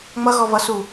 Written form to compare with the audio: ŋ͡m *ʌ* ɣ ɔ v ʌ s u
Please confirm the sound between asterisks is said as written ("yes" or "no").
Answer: yes